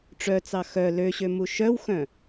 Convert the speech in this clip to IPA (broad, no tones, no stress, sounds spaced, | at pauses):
ʈ͡ʂ œ t͡s ɑ x œ l ø ɕ ø m u ʃ œ w x œ̃